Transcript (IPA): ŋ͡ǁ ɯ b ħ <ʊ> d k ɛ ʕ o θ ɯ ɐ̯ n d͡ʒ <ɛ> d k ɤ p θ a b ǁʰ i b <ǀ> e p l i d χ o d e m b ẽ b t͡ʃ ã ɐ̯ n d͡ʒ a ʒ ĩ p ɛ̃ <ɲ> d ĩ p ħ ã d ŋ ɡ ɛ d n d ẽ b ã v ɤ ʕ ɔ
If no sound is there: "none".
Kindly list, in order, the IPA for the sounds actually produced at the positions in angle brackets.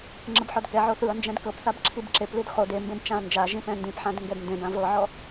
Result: ɔ, ɛ̃, ǁ, n

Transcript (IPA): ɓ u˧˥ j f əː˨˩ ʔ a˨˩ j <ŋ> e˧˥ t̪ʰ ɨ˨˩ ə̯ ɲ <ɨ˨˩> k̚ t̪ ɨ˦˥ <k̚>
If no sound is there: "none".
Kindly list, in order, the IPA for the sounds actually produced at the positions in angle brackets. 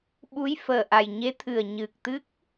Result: ɲ, ɨ˨˩, k̚

